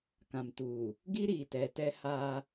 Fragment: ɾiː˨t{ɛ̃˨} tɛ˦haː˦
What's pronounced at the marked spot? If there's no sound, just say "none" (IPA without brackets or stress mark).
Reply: ɛ˨